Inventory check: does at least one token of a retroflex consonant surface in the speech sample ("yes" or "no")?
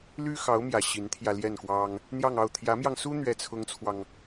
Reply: no